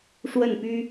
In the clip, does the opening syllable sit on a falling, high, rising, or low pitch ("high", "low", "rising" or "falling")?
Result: falling